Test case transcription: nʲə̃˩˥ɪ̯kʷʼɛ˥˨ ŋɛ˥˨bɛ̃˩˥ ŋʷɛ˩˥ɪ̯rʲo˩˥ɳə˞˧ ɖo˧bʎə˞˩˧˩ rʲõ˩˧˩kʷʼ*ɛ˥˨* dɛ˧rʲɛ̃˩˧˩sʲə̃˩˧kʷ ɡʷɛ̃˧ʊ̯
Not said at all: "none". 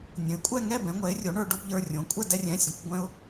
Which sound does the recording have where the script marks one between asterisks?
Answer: ɛ˥˨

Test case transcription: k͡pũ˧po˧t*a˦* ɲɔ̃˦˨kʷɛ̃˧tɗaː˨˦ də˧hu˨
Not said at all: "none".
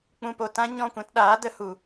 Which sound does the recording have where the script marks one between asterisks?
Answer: ã˦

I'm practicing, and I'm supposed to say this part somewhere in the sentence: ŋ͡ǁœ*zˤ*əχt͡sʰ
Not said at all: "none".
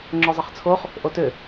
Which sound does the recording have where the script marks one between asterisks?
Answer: zˤ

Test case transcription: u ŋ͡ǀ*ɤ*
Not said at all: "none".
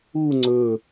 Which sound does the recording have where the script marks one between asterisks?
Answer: ɵ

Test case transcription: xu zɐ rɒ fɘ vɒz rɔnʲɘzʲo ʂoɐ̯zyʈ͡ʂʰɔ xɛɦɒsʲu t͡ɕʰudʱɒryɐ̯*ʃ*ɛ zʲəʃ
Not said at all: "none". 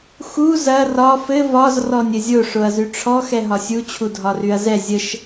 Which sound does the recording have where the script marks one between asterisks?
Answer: z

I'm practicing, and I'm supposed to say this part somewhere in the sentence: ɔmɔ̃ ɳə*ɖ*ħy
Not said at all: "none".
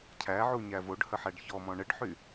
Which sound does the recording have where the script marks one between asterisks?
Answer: ɖ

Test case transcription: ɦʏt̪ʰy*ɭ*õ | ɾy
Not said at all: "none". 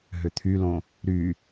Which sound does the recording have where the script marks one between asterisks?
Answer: l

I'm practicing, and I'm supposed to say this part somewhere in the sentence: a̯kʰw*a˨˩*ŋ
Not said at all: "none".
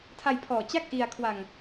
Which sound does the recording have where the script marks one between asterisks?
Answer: a˧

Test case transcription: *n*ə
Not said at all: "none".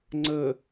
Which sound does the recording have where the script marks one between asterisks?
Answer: ŋ͡ǀ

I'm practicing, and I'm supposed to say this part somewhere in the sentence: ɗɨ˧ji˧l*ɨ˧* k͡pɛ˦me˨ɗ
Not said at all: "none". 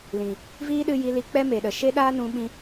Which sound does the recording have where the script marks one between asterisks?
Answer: i˧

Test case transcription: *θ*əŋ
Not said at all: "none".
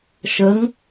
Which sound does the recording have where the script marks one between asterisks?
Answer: ʃ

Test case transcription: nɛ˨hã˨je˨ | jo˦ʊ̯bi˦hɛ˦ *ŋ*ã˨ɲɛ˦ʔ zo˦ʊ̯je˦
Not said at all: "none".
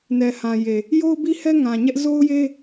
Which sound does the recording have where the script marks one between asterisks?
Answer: ŋ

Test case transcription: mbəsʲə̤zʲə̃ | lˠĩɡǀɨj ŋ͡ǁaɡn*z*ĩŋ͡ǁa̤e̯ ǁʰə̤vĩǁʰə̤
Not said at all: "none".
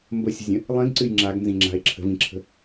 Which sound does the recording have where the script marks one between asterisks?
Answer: z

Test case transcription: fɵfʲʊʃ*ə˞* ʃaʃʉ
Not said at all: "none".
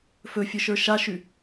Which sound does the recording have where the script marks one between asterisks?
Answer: ə˞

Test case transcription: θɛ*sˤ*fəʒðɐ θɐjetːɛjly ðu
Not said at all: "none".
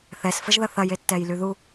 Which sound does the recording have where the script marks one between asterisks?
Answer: s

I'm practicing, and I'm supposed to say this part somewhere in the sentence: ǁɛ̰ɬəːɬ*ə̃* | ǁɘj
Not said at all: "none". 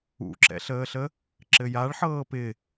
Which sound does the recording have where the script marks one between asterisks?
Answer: ə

